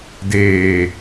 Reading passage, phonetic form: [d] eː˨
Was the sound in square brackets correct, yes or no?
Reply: yes